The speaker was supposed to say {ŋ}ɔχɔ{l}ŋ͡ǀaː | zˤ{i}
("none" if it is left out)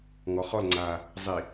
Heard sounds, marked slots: ŋ, l, i

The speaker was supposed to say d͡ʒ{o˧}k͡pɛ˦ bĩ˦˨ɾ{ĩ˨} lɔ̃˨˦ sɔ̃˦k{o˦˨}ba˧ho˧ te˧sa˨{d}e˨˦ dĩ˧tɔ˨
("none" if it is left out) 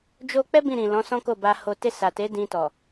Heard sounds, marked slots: o˧, ĩ˨, o˦˨, t

